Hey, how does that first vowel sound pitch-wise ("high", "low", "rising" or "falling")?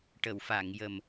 low